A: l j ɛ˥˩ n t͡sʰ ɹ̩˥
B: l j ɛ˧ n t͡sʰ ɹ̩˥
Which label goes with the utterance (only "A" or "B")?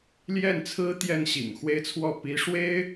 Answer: A